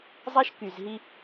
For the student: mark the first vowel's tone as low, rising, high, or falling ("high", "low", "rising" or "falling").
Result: high